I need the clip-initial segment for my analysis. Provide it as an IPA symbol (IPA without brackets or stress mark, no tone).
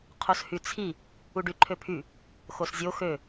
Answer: qʰ